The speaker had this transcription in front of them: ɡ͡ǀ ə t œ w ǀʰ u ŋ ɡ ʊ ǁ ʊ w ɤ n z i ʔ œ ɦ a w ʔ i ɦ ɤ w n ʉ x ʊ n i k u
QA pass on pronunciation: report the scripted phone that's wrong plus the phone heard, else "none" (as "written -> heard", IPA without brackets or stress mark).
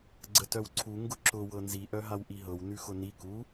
none